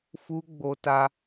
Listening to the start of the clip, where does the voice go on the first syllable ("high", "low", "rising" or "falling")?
high